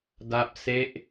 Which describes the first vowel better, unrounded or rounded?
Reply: unrounded